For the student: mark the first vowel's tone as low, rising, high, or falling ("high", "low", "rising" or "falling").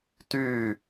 falling